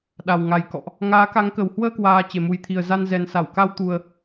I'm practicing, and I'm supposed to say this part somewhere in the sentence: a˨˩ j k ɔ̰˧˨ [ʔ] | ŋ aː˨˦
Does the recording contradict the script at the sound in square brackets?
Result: no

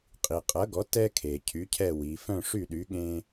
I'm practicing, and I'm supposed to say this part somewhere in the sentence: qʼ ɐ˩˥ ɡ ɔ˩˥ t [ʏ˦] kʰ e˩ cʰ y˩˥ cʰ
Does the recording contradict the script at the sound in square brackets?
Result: yes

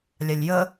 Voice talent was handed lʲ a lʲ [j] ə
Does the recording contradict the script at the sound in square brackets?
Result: no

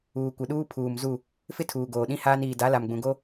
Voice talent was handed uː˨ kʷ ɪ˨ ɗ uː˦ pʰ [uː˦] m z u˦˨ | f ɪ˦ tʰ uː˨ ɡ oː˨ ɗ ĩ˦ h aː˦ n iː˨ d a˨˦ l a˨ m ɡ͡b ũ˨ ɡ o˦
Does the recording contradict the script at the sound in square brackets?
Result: yes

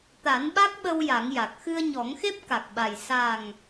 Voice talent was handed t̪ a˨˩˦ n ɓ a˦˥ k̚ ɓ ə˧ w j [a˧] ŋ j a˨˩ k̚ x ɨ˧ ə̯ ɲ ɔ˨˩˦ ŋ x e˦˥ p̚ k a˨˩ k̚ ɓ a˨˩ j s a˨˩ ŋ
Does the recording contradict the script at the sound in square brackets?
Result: yes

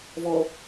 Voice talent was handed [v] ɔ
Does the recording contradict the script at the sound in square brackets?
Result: no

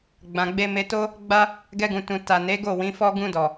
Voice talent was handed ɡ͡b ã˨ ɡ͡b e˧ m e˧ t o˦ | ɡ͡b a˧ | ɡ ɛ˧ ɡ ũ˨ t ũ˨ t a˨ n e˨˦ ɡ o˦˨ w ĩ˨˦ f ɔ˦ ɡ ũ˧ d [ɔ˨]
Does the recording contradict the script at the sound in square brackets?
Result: no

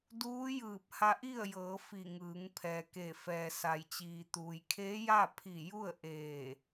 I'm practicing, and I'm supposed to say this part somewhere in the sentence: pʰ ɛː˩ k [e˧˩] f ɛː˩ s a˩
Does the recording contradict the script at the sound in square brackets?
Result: no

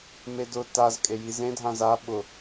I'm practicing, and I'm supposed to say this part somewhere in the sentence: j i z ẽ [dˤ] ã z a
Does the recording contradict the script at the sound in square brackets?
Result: yes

